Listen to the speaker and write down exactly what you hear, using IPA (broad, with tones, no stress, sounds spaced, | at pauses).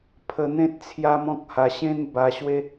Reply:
pʰ ə˧ n̪ ẽ˦ t̚ t͡sʰ j a˦ m ɔ̃˦ k̚ h a˧ ɕ ẽ˦ n b a˧ ɕ w e˦